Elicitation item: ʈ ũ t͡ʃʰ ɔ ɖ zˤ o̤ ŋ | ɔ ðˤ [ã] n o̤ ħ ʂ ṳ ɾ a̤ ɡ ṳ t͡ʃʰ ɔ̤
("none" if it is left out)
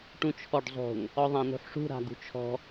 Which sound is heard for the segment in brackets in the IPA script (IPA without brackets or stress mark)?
ã